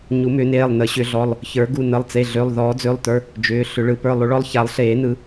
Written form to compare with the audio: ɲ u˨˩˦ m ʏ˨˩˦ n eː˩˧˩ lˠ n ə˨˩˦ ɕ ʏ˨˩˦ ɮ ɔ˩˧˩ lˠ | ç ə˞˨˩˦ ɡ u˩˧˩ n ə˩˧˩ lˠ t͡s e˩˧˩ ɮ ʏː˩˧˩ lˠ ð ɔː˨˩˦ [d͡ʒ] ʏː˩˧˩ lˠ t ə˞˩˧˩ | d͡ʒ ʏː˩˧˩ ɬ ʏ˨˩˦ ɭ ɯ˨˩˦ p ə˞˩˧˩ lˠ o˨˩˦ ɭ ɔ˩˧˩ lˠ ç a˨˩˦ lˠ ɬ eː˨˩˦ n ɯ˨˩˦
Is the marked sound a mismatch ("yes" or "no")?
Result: yes